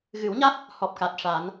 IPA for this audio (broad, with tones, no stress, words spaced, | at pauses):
ɣɨ˨˩˦wɲa˦˥t̚ | hɔ˨˩p̚ka˨˩t̚ ʂa˨˩˦n